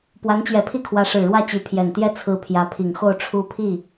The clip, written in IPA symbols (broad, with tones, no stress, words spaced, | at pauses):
pwa˧˥nt͡ɕɥɛ˧˥pʰi˥kʰwä˧˥ ʂɻ̩˨˩ɻwä˥˩t͡ɕy˧˥pʰjɛ˨˩n t̪jɛ˥˩ t͡sʰɹ̩˧˥ pʰjä˧˥pʰi˨˩ŋxo˥˩ʊ̯ ʈ͡ʂʰu˥pʰi˥˩